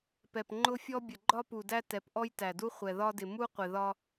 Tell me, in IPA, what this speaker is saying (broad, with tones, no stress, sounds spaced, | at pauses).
p ɛ˨ p ŋ͡ǃ ʊ˦ fʲ ɔ˦ bʲ ə˨ ɡ͡ǃ ɒ˦ p u˨ d æ˦ t ɛ˨˦ p ʔ ɔ˦ j t æ˨ d u˦ χʷ ɛ˨ ð ɒ˦ d ɪ˨ m u˦ qʷ ɪ˨ ð ɒ˦